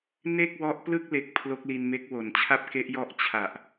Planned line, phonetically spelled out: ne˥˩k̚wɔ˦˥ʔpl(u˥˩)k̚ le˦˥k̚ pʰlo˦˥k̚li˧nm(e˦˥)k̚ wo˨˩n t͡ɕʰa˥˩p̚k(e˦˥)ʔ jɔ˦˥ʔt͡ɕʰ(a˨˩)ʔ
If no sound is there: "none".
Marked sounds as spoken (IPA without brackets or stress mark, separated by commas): ɯ˥˩, e˦˥, e˦˥, a˨˩